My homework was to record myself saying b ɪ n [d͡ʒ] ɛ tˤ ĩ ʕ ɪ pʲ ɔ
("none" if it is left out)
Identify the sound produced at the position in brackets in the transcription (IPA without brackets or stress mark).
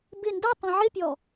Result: d